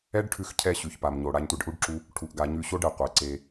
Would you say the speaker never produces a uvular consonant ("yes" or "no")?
no